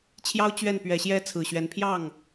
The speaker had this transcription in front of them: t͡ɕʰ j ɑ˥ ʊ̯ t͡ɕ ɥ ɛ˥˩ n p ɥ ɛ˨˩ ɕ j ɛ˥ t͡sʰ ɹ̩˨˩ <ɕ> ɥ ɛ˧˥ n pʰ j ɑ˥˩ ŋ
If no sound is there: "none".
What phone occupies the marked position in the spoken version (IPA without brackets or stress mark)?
ɕ